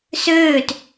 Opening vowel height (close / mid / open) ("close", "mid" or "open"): mid